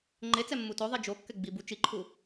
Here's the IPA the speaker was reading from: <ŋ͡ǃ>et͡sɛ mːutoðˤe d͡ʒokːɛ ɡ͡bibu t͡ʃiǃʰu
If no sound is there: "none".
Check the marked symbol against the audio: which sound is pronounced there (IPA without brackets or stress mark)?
ŋ͡ǃ